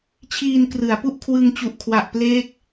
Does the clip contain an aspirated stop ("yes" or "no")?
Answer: yes